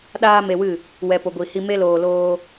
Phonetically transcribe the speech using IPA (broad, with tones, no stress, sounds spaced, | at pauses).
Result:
ɗ aː˦ m e˧ w ɨ˦˨ | w ɛ˨ p o˨ ɡʷ i˨ h i˧ m e˦ l oː˧ l oː˦